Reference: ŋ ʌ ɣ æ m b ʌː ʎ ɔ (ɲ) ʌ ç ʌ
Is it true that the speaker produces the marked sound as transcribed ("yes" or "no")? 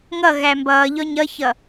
yes